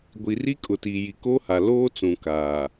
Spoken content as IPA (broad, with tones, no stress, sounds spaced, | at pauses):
ɡʷ i˨ r i˦ kʼ ʊ˨ t i˨ j i˨ k o˦ h a˨ l oː˦ t͡s ũ˨ k aː˨